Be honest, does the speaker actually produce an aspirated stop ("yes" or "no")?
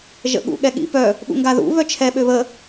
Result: yes